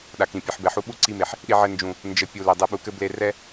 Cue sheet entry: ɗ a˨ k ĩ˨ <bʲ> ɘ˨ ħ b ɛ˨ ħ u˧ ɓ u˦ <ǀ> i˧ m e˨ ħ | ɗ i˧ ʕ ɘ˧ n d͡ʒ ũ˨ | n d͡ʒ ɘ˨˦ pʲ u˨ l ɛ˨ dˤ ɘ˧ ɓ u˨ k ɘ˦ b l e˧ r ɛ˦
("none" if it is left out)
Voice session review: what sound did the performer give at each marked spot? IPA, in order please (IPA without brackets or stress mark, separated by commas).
pʲ, ǀ